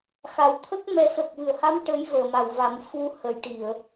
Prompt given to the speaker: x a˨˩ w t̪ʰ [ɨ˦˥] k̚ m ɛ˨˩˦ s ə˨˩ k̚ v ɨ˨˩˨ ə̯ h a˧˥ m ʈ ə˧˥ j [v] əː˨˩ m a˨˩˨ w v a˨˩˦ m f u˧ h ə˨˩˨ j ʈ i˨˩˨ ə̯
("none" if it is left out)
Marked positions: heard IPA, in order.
ə˦˥, v

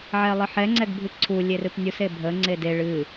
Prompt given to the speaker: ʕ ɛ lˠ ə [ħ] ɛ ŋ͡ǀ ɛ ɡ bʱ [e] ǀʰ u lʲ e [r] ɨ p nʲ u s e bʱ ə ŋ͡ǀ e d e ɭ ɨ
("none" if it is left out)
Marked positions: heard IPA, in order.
ħ, ɨ, r

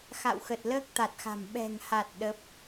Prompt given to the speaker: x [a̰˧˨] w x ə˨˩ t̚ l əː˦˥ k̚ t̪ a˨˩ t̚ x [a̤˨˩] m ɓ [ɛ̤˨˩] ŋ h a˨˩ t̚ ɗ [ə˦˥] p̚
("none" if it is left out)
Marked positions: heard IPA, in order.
a̰˧˨, a̤˨˩, ɛ̤˨˩, ə˦˥

